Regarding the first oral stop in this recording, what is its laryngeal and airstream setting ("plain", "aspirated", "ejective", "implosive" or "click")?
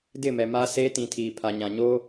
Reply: plain